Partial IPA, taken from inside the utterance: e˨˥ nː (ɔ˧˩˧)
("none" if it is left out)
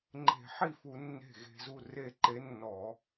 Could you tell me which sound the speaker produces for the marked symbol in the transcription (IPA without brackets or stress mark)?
ɔ˧˩˧